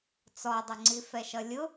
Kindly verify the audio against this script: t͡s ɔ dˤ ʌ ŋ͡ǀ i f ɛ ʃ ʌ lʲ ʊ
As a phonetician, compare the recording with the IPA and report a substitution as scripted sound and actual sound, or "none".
none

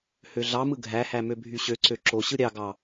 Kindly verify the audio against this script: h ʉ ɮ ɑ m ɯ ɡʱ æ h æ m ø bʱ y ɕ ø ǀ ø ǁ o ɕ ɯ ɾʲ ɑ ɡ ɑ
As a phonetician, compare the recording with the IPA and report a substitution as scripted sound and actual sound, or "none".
ʉ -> ø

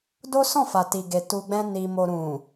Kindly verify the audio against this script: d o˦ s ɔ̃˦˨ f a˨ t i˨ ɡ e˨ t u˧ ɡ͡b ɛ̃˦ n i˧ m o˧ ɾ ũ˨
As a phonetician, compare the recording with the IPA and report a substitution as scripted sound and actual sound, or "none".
none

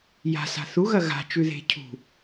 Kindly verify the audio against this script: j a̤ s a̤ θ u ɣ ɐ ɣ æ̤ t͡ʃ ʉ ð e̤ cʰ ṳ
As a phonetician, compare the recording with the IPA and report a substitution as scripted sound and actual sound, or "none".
æ̤ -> a̤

